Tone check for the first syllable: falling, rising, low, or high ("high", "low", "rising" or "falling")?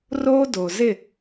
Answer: high